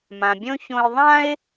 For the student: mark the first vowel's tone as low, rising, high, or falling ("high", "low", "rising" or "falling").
low